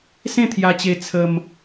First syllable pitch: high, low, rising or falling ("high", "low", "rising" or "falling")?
falling